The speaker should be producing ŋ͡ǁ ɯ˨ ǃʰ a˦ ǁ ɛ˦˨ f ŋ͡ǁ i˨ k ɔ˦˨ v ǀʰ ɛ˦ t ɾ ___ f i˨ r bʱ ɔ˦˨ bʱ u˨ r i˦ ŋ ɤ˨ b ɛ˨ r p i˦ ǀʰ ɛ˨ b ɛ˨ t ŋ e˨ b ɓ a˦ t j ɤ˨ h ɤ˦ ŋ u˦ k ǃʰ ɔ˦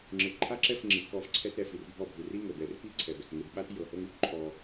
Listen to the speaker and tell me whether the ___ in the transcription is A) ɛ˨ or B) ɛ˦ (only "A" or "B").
A